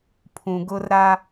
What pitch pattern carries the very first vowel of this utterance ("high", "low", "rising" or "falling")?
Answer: low